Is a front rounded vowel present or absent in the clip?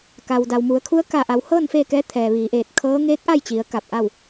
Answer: absent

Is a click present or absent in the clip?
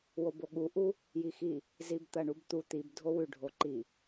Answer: present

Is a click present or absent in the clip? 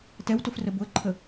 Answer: present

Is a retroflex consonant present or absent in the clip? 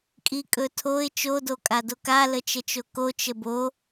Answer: absent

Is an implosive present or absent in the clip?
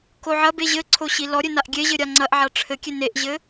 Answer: absent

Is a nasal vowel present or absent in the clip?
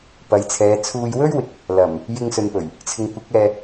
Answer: absent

